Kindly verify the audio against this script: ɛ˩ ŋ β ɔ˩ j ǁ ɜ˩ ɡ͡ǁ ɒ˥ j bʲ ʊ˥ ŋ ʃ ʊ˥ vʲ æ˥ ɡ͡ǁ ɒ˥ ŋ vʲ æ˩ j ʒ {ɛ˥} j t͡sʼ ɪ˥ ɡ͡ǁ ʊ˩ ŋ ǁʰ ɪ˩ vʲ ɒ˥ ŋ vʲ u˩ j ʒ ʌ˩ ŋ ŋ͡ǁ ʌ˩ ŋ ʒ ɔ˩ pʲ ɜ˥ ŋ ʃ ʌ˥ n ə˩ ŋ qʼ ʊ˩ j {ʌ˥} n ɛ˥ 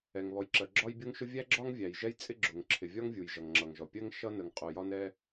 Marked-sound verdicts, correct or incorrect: correct, incorrect

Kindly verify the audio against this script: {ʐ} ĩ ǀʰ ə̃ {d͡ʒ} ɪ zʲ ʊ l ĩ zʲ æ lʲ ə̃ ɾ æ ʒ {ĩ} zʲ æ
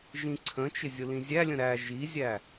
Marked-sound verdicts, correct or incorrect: incorrect, incorrect, incorrect

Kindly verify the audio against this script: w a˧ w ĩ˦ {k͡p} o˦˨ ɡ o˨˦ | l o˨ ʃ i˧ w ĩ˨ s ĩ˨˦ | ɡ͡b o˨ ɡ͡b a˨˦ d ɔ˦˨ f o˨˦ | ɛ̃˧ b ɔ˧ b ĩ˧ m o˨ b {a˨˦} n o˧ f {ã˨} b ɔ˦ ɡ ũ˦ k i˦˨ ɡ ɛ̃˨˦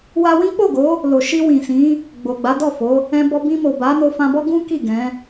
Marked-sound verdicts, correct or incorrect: correct, correct, incorrect

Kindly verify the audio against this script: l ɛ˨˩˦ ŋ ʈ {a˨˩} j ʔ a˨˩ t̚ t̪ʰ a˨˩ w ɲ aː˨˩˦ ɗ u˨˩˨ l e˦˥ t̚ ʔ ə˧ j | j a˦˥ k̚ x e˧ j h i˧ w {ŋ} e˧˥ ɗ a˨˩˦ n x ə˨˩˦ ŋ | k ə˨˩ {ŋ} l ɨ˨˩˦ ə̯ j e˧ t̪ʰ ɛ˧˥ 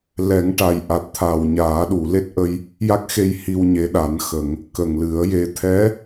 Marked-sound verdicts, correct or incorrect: correct, incorrect, correct

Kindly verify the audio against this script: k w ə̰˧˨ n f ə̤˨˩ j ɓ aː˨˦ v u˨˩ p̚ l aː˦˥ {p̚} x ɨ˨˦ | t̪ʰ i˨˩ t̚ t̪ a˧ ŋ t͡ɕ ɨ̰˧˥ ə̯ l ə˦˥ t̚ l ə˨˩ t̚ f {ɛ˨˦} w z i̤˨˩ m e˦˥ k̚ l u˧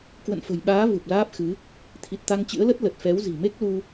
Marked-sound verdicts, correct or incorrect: correct, correct

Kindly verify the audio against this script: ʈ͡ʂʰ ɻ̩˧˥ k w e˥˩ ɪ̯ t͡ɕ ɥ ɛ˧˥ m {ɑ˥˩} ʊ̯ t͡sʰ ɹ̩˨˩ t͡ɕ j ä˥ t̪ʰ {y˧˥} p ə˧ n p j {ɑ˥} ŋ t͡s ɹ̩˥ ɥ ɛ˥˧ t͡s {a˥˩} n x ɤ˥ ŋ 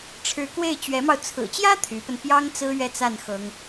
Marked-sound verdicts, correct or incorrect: incorrect, correct, correct, correct

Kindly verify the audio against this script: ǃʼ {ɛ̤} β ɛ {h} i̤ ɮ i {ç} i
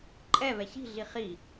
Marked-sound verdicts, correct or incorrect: incorrect, incorrect, incorrect

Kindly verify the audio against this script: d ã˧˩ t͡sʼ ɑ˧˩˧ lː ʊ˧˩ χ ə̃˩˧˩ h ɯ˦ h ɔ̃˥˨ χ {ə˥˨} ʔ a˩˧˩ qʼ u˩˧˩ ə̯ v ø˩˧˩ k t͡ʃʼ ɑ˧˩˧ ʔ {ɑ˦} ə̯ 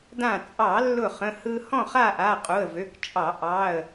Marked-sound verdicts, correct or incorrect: incorrect, incorrect

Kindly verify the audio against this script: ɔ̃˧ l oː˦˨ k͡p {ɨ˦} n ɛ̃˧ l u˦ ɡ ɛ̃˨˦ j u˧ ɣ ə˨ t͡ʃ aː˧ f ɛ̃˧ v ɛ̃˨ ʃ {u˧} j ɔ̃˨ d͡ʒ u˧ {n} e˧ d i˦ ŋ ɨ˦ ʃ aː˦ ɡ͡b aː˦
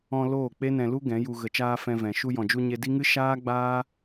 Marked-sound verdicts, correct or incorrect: incorrect, correct, incorrect

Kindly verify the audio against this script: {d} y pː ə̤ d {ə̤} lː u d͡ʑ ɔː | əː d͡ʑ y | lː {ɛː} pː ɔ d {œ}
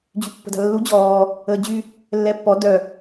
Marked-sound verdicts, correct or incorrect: incorrect, incorrect, correct, correct

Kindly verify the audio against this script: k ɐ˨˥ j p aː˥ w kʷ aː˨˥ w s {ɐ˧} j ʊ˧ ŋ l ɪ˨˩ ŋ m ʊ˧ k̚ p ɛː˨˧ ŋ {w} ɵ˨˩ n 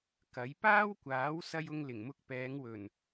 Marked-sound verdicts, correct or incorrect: correct, correct

